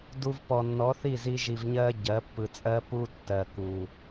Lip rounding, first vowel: rounded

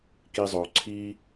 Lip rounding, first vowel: unrounded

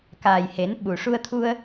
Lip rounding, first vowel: unrounded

